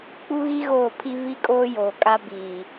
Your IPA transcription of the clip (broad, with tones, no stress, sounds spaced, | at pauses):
k͡p u˦ ɣ i˦ ɣ oː˦˨ pʰ i˦ v i˦ kʼ oː˦ j oː˨ kʼ a˦ b iː˨